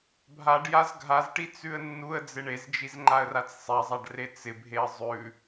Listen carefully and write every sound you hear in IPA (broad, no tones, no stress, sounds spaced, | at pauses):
bʱ a ɖ j a z ɡʱ a z ʈ i t͡s ʉ ə̯ nː u ə̯ d͡z ɪ ɳ e z d͡ʒ i z ŋ͡ǃ a ə̯ r a t͡s sˤ ɛ zˤ a ɖ r e t͡s ɪ bʱ e ə̯ zˤ ʉ